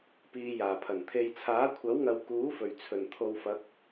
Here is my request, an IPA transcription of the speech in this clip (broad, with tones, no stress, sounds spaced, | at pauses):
p iː˨ j aː˨˩ pʰ ɐ˨˩ n t̪ʰ e˨ j t͡sʰ aː˨˥ kʷʰ ɐ˨˥ w ŋ ɐ˨ w k uː˨˥ f ɵ˨˩ ɥ t͡sʰ ɵ˨˩ n t̪ʰ o˨˧ w f ɐ˨˥ k̚